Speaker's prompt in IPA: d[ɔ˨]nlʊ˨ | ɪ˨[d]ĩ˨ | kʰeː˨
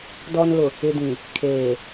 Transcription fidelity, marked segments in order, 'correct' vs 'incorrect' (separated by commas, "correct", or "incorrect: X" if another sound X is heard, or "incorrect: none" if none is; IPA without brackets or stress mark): correct, correct